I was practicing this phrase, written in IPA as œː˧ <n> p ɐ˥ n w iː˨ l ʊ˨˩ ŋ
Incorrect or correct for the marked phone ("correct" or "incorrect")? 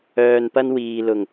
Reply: correct